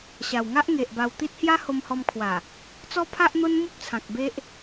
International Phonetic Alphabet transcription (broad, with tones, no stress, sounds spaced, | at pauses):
ɕ a˨˩ w ŋ a˦ ʔ ŋ e˨ ʔ b a˧ w t̪ i˦ t̚ h j a˦ h o˧ m h ɔ˧ m kʰ w a˨˩ | t͡s ɔ˦ pʰ a˦ ʔ n̪ o˦ n m u˦ p̚ t͡sʰ ã˨ k̚ b e˦ ʔ